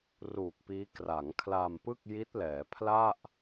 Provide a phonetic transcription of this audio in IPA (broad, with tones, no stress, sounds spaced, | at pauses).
r uː˨˩ k̚ p iː˦˥ k r a˩˦ ŋ kʰ l a˧ m p ɯ˥˩ k̚ j i˦˥ t̚ l ɛː˩˦ pʰ l a˥˩ ʔ